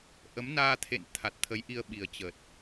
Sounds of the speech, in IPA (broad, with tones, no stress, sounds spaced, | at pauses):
ʔ ə˨˦ m n aː˧ t̪ʰ ḛ˧˨ n t̪ʰ a˨˩ t̚ t̪ʰ ə˨˦ j ʔ i˧ ə̯ ɓ i˨˩ ə̯ t͡ɕ ə˨˩ t̚